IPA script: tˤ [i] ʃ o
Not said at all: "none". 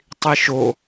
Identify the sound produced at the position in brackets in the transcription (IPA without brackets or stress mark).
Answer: i